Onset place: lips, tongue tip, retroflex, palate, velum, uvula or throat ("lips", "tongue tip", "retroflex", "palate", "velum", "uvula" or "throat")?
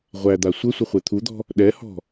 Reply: uvula